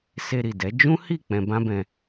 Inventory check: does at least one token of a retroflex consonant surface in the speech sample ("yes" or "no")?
no